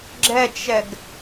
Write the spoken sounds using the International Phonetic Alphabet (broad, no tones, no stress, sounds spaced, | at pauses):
ɡ͡ǁ ɛ t͡ʃ ɛ ɡ